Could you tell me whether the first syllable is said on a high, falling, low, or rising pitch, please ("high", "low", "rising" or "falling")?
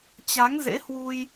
rising